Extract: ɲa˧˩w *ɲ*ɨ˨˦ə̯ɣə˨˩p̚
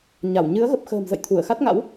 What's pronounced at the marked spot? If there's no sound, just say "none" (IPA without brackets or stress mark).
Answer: ɲ